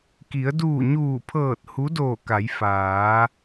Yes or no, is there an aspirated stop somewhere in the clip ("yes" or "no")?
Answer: yes